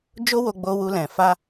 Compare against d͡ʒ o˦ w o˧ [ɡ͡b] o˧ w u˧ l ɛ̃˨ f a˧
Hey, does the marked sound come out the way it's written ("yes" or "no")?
yes